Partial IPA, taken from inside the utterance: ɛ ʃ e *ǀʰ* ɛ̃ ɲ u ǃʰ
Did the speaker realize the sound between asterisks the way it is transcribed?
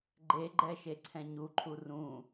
yes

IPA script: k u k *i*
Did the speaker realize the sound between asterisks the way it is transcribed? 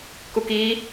yes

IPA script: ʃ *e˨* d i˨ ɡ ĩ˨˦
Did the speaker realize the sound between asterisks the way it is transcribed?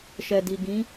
no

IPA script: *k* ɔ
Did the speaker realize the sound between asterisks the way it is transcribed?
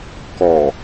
yes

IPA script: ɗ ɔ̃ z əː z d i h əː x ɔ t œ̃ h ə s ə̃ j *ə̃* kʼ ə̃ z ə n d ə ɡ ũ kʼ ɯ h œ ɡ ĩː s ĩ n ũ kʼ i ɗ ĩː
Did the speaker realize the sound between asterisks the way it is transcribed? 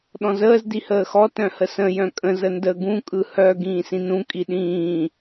no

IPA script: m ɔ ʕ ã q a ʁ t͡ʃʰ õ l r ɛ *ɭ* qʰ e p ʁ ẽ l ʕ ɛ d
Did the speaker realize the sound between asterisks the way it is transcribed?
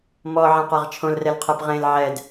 no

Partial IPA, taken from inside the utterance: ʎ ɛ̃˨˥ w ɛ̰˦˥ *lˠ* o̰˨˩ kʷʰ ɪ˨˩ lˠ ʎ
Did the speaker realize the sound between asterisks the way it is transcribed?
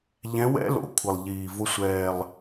no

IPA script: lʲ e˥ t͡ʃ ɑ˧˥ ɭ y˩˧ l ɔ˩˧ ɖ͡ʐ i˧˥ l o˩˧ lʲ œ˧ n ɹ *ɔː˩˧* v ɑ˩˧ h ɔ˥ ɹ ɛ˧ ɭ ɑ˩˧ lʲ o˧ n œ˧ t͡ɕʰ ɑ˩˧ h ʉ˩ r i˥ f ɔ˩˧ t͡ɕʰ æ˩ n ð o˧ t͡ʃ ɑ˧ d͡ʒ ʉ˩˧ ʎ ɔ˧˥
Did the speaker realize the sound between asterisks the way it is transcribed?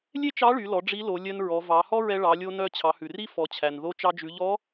no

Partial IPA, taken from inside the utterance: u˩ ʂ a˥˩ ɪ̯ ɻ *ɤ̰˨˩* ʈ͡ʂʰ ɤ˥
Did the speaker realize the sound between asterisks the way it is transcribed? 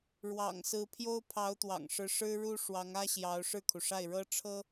no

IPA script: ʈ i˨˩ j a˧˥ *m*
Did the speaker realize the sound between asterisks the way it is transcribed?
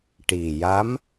yes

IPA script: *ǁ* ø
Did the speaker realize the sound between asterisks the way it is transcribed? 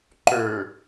no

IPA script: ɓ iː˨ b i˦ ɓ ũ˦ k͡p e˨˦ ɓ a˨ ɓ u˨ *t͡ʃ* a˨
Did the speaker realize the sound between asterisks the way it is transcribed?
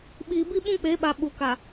no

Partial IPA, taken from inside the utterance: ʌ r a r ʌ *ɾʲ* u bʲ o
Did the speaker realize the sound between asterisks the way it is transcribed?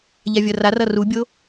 no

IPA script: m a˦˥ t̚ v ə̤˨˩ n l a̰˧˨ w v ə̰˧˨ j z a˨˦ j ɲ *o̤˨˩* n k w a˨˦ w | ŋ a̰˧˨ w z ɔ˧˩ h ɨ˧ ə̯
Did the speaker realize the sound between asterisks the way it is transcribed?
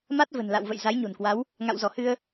yes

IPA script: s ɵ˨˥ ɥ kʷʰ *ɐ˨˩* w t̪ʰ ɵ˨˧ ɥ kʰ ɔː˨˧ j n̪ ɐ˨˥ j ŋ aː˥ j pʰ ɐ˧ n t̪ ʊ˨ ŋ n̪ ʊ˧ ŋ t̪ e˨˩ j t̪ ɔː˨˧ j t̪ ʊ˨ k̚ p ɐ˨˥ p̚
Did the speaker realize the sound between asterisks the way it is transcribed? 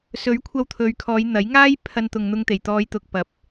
no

